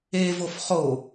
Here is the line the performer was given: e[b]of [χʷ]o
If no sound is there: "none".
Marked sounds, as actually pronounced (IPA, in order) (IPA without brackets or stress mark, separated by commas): v, χ